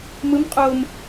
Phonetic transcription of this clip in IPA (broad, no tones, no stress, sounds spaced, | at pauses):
m ɯ m qʼ oː m